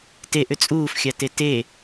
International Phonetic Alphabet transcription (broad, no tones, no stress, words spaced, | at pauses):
teʔʏ t͡sʼuːfxʲate te